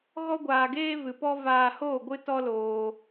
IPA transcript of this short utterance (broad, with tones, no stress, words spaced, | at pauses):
ɣɔ˦ɡʷaː˧ɡeː˦ vɨ˧pɔ˦ vaː˧hoː˦˨ ɡʷɨ˦tɔ˦loː˧